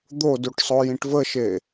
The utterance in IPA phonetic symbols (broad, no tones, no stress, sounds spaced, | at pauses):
d̪ o d u ʈ sˤ o j ĩ ʈ v ə ʃ e